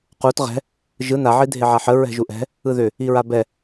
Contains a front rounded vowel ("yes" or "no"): yes